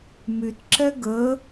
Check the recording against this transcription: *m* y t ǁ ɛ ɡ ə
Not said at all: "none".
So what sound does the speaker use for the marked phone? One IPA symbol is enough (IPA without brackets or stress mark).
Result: m